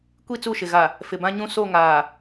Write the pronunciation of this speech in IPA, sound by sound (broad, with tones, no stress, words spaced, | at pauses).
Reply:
kʷi˦˨t͡su˦˨ʃɪ˨ ɣa˨ | fɪ˨bã˦ɲũ˦ so˦˨ŋaː˨